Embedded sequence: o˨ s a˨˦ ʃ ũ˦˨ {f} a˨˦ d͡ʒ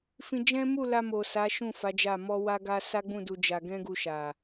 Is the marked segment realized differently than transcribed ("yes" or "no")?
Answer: no